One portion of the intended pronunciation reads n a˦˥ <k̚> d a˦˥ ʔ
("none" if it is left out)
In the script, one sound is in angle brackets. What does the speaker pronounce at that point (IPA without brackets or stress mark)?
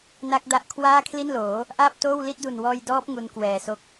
k̚